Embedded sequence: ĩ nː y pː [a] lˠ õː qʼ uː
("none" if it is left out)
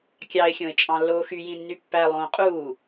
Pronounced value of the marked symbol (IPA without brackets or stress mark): æ